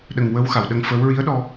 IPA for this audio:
ɗ ə˨˩ ŋ w ə˧˥ w x a˨˩˨ w ɗ ə˧ ŋ f əː˧˥ w ɹ i˧˥ ə̯ ɗ ɔ˧

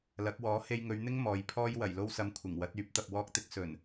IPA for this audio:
l ɐ˨˥ k̚ w ɔː˨˥ h e˧ j ŋ ɵ˨˧ ɥ n̪ ɪ˥ ŋ m ɔː˨ j pʰ ɔː˥ j w ɐ˨˩ j l o˧ w s ɐ˨ m kʷʰ ɪ˨˩ ŋ w ɐ˨˥ t̚ yː˨˥ p̚ t̪ ɐ˨ p̚ w ɔː˥ k̚ t̪ ɪ˥ k̚ s ɵ˨˩ n

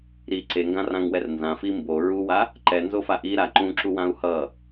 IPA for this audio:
ɾ i ǀ e ŋ ɡ ã r ã ŋ w ɛ r n z ã f i m b o ɹ u w a | ǃ ɛ n z o f a ʔ i ɾ a ǃ ũ ǁ u w ã u̯ h ʌ

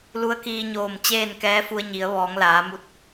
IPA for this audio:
l u˧˥ ə̯ k iː˧ ɲ oː˧˩ m t͡ɕ eː˥˨ n k ɛː˧˥ f u˧ ə̯ ɲ i˩˧ ə̯ ʋ ɔː˩˧ ŋ l aː˩˧ m u˧ t̚

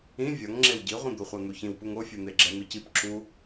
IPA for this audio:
ĩ vʲ ʌ ŋ ŋ͡ǁ e w ɟ i ʁʷ ĩ d̪ o χʷ a n̪ u ç ĩ w p u ŋ o fʲ u n̪ e ɡ͡ǁ ɛ n̪ ɯ c i p ǁ u

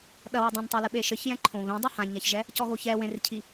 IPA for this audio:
ɗ ɐ w ɘ dˤ ɛ̃ n tˤ a l ɨ ɓ e ʃ ɘ ç j ɛ̃ ǃʰ õ β ẽ dˤ e h ã ɲ a ç ʒ ɛ | c ɔ ɣ o ç ɛ w ẽ r cʰ i

